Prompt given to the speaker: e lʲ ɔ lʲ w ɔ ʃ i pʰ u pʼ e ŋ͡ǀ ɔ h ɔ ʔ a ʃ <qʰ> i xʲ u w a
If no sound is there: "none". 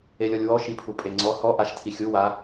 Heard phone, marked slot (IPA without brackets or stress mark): tʰ